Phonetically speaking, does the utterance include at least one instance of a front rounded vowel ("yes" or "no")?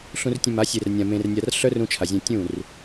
yes